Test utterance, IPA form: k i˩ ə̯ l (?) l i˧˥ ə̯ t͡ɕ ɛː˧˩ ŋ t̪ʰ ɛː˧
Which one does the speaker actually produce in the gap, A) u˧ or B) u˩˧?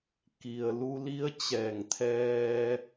A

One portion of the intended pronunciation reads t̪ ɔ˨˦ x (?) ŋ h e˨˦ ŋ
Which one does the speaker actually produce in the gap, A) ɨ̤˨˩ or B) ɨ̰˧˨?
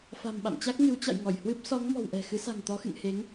B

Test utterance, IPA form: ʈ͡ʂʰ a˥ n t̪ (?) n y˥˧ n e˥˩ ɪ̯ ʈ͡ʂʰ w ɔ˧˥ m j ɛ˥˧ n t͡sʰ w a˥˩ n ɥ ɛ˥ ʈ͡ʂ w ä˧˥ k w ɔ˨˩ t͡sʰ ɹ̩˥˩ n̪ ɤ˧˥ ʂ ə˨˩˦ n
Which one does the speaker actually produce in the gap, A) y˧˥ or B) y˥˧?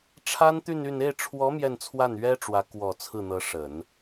B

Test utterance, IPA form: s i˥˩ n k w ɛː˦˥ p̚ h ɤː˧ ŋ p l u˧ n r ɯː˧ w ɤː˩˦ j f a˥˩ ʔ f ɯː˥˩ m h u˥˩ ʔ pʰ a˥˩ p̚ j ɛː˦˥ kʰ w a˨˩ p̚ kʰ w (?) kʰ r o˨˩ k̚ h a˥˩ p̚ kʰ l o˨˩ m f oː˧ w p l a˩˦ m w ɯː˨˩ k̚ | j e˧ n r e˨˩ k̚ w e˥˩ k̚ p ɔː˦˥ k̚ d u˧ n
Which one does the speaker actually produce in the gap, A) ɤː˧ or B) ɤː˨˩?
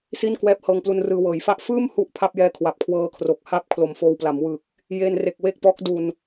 A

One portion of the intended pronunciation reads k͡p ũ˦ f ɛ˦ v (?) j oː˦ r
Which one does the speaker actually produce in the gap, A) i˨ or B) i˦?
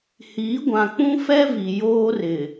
A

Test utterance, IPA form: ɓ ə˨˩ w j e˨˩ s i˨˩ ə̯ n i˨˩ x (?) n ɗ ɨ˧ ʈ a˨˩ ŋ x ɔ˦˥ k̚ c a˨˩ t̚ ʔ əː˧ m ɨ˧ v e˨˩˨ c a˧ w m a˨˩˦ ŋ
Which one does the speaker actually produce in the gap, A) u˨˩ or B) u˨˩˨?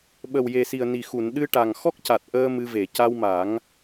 B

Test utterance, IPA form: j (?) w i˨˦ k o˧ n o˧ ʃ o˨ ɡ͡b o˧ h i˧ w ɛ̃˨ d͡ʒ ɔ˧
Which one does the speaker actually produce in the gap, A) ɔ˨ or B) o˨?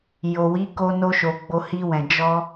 B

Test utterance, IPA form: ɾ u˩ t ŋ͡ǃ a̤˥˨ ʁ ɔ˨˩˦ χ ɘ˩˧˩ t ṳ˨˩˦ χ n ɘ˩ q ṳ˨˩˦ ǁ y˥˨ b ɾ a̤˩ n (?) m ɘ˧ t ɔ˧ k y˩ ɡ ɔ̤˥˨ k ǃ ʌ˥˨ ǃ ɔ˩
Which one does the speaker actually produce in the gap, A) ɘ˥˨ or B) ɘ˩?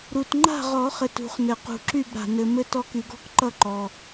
B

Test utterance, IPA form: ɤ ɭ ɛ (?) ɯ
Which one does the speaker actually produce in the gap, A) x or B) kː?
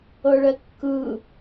B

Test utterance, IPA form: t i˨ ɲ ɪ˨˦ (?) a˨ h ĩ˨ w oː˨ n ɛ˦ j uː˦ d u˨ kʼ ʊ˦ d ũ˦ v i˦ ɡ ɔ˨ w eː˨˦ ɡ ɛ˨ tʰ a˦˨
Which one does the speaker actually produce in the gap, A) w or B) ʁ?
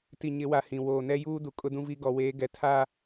A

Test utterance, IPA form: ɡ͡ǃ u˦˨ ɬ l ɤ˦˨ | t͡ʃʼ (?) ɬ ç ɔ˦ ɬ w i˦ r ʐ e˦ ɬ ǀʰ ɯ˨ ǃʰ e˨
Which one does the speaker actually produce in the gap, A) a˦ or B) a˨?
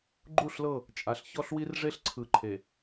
B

